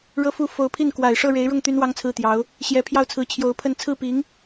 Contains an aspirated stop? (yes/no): yes